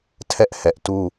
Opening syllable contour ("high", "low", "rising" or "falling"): high